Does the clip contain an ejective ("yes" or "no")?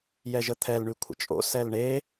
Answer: yes